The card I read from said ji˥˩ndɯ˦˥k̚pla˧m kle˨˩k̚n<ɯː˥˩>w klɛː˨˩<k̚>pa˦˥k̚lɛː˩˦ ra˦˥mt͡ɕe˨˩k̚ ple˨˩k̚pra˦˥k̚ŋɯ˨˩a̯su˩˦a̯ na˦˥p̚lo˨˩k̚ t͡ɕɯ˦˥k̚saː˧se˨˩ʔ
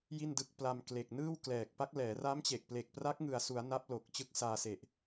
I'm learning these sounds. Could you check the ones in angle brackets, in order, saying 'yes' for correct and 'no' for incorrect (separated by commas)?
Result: yes, yes